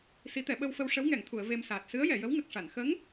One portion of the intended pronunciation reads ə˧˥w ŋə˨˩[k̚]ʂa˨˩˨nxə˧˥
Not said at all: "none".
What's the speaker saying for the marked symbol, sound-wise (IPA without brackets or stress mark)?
k̚